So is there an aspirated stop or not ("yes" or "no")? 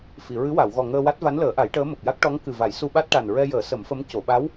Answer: no